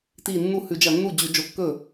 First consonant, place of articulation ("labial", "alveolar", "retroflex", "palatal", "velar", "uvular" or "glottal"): alveolar